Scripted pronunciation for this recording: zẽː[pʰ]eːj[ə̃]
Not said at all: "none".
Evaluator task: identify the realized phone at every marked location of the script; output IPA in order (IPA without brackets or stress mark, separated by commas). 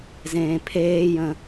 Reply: pʰ, ə̃